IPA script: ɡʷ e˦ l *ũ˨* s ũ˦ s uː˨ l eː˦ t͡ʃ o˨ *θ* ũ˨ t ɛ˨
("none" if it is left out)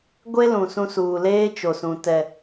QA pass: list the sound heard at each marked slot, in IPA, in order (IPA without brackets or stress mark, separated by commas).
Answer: ũ˨, s